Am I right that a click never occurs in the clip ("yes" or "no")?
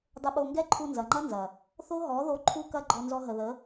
no